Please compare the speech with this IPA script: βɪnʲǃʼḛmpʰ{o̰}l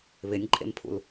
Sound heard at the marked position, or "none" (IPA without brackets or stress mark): ṵ